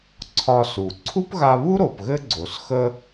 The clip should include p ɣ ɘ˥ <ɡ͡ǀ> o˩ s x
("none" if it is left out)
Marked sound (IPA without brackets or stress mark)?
ɡ͡ǀ